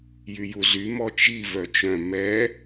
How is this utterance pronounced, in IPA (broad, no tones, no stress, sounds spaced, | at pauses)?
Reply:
j y j u z y m ɔ t͡ʃ i v œ t͡ʃ œ̃ m ɛ